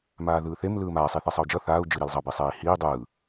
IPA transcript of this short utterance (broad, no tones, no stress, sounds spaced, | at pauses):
m aː ð ɯː θ e m l ɯː m aː sˤ i θ e sˤ ʌ u̯ d͡ʒ ʌ θ aː u̯ d͡ʒ ɯ ɾ i l zˤ ʌ b i sˤ eː i̯ h iː dˤ ɯː